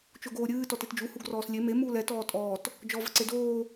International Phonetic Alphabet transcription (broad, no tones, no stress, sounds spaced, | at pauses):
t͡ʃ o ɡ oː ɾʲ ɨː t ɔ t e t d͡ʒ u h u ɡ r ɔː s lʲ e m e m uː l ɛ t ɔː tʼ ɔː t | d͡ʒ ɔ v ə ǀ e d oː